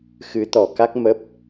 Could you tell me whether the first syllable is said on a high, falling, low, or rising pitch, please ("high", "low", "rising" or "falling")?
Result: rising